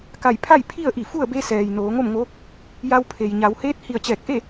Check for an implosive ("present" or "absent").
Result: absent